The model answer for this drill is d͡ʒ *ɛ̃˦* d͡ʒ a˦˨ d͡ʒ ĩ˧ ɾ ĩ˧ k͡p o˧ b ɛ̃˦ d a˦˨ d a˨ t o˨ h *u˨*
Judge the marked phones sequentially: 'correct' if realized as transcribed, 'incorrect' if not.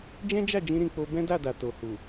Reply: correct, correct

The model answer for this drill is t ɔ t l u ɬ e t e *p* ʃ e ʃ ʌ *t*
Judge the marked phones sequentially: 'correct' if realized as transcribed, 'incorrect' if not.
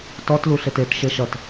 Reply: incorrect: t, correct

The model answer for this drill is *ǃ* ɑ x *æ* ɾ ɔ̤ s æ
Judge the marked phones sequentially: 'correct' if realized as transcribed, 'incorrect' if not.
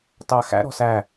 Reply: incorrect: t, incorrect: æ̰

